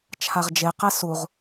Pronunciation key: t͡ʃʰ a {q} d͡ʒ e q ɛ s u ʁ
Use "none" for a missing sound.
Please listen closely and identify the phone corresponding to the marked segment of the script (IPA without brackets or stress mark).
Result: ʁ